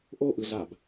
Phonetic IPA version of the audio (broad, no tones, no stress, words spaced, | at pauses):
ʔoʔɯɮab